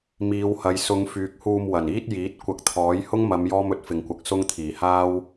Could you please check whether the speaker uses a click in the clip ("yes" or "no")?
no